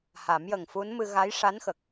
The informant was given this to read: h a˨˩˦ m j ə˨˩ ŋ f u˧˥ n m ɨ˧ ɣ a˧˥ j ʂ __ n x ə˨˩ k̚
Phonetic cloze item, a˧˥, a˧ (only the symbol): a˧˥